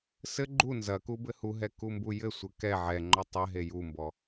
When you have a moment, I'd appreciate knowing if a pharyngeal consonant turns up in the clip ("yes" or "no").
yes